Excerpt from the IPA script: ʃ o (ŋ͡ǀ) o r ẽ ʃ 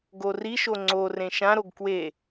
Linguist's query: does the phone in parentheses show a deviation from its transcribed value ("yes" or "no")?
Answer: no